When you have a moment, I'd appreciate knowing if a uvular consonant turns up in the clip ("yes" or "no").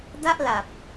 no